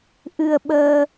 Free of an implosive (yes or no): no